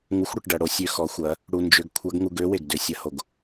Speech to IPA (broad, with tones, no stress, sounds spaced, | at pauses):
ŋ u˧˥ xʷ ɽ ʏ˩˧ ʈ ɖ ɐ˧ ɽ o˥ sʲ ø˧˥ x ɔ˩˧ xʷ ɐ˩˧ | ɽ u˧ n d͡ʒ ʏ˧˥ ɡ kʷʰ ɐ˧˥ ɡ ŋ u˧ ɡ ø˧˥ w e˩ ɡ d ʏ˩˧ sʲ ɐ˩˧ h o˩ ɡ